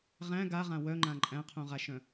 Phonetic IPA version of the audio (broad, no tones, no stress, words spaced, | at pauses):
ʁæ̃ ɡaʁã wœŋ͡ǃã ǃʼæ̃qʰũʁaʃœ̃